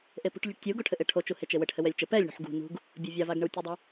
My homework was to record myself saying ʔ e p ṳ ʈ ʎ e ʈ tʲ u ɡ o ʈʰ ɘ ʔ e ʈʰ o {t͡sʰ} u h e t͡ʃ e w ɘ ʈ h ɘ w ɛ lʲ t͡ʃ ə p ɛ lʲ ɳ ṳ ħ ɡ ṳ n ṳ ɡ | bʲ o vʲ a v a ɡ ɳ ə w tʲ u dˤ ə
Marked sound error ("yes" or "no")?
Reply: yes